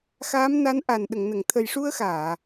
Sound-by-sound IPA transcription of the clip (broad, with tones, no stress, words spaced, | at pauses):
xaː˧˥mna˧˥nʔa˨˩n ɗə˨˩˨ŋnə˨˩˨ŋ t̪ʰə˨˩jʂu˧ə̯xaː˨˩˨